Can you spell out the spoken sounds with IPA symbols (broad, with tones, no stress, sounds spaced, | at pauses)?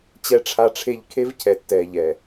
t͡ɕ ɛ˨ ʈ͡ʂʰ a˨ ʈ͡ʂʰ e˨ ʎ kʰ e˦ v cʰ ɛ˨ tː ɛː˨ ʎ ɛ˨